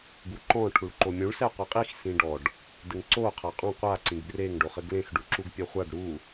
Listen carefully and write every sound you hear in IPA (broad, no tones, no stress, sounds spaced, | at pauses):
ɡ u ǃ ɔ̃ ʈʰ u ɭ ǃ o mʲ ũ ɭ s ɛ qʷ ɐ qʼ i x s ĩ ɖ ɔ ɖ | d ɘ ŋ ǀ o qʰ a qʼ ɔ̃ qʷ a ǀ ĩ ɡ b r e ŋ ɖ o χ ɘ ɡ l ẽ x ɖ u ǁ u ɡ pʲ ɛ χʷ a ɖ ɾ u